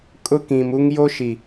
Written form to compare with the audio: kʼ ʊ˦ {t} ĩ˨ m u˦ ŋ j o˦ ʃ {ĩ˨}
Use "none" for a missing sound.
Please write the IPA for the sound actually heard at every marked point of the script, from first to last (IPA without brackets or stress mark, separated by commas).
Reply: k, i˨